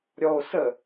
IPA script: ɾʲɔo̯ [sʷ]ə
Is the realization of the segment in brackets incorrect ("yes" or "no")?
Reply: yes